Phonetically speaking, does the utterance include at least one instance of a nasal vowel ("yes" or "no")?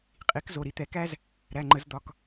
no